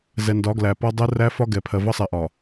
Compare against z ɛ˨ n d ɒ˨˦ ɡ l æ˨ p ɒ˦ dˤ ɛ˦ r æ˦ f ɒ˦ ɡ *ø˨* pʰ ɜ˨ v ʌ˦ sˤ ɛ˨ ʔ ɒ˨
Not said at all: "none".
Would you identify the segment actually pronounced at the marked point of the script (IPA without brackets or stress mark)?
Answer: ɛ˨